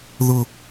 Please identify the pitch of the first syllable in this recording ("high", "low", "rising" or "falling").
high